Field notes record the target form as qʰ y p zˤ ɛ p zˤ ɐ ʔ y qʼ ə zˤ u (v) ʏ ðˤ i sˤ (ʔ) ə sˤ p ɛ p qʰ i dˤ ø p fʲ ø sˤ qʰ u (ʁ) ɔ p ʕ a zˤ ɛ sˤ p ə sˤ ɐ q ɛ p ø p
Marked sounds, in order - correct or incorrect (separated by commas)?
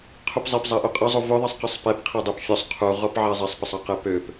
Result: correct, incorrect, correct